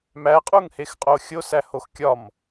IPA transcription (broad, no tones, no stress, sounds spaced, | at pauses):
m æ qʼ u ŋ h e x qʼ o xʲ o s æ h o x kʲ ɒ m